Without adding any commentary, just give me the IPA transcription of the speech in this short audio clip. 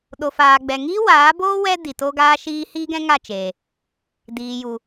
ɗo˨faː˨ɡ͡bɛ˨ŋiː˦ waː˨˦boː˦ wɛ˦ di˨to˦ɡaː˦ʃiː˦ hiː˦ɡɛ̃˦ ŋa˦˨t͡ʃeː˨ | diː˨ju˨

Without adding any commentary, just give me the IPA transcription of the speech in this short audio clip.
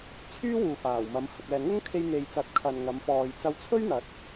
t͡sʰyː˥wuː˨faː˨˩wmɐ˨˧m hɐ˨k̚ɛː˨ ŋʊ˥ŋkʰe˧j n̪e˨jt͡sɐ˨˥t̚ kʰɐ˨nŋɐ˨˧mfɔː˨j t͡sɐ˧wt͡sʰɵ˥ɥn̪ɐ˨˥t̚

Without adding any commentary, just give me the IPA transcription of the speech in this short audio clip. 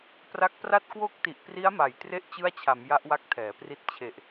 pra˦˥k̚pra˥˩t̚ kwo˦˥k̚ti˨˩ʔpri˦˥a̯ma˨˩j tre˦˥ʔt͡ɕɯ˦˥a̯t͡ɕʰa˩˦m ja˦˥ʔwa˦˥k̚tʰɛː˩˦pri˦˥t̚ t͡ɕʰe˨˩ʔ

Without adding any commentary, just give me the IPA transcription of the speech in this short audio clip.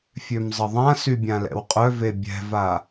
fʲømzˤəðˤãsy bʲãlɛ̰wqʼœve bʲɛ̤va

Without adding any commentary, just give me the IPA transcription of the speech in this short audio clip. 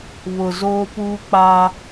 βʊ˨zoː˦puː˦k͡pa˦

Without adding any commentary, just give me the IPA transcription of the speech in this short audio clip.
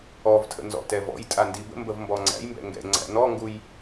ɔvtʰə̰nzɔ̰tɛ vɔ̰jtʼandi bə̰mbəvmbɔ ŋ͡ǀæ̰jmbɛ̰ ŋɡɛ̰ŋ͡ǀæ̰ nɔŋɡuj

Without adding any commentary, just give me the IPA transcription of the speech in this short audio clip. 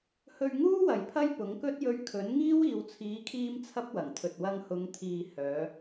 hɵ˧ɥŋuː˥ wɐ˨jpʰɐ˥jpʊ˨˥ŋkɵ˥t̚ jɵ˨˧ɥ kʰɵ˨˥nŋiː˥w iː˨wt͡sʰiː˨˧kʰiː˧m t͡sʰɐ˥p̚wɐ˨˩ŋt̪ʰɵ˨t̚ wɐ˧ŋhʊ˨˧ŋt̪ʰiː˨ hœː˨˧

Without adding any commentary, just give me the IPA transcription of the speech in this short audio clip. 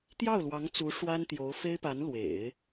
t̪jɑ˥˩ʊ̯lwɑ˧˥ŋ t͡su˧˥ ʂwa˥nt̪jo˧˥ʊ̯ fe˥ɪ̯pa˧˥n lwḛ˨˩˦ɪ̯

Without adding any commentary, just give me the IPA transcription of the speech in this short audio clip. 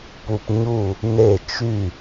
pu˦pɲu˥˨ | ne˥˨ t͡ʃy˥˨

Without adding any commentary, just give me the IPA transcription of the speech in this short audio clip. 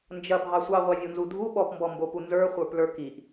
nd͡ʒɐbʱɑ sʷɑʁʷɑvʲonzu dʱu ɓɔpmbɔmbopu nzə˞χʷə˞plə˞ kiʔ

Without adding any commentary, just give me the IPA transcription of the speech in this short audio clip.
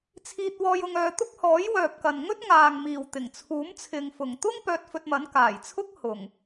t͡sʰiː˧t̚wɔː˧j ʊ˧ŋœː˧t̪ʊ˥k̚ hɔː˨˥jwœː˨p̚kɐ˨n ŋɵ˥t̚ŋaː˨ŋmiː˨˩w t̪ɪ˨˩ŋt͡sʰuː˨˥mt͡sʰɪ˨ŋ fʊ˨˩ŋt̪ʊ˥ŋ pœː˧t̚fɵ˧t̚mɐ˨˥n kaː˨˩j t͡sʰʊ˥k̚ hʊ˨˩ŋ

